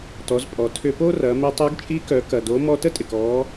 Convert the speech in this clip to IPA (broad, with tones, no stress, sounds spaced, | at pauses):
t ɔ˩˧ z pʼ ɔ˩ tʰ ʏ˧ p o˥ r ɐ˩˧ m ɪ˧ tˤ œ˧˥ ɡ t͡ʃʼ i˧˥ k œ˩˧ k ɐ˩ d o˩˧ m ɔ˧ t ə˥ tʼ ɪ˩ k ɔ˩˧